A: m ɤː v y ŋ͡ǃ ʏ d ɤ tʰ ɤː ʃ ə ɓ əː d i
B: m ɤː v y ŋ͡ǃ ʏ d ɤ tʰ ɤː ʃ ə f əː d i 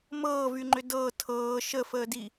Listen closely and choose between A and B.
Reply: B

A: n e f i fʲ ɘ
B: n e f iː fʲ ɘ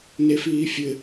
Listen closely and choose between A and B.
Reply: B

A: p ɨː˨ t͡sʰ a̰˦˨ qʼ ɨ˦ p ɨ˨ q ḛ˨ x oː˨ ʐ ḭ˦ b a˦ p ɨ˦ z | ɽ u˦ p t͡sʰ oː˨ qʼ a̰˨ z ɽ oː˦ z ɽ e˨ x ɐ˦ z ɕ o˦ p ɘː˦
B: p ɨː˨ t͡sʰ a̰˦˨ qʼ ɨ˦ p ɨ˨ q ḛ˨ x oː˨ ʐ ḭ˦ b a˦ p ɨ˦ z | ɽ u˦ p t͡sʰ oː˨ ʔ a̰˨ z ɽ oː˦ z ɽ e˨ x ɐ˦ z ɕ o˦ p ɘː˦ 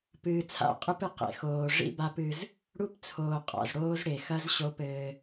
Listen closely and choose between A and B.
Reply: A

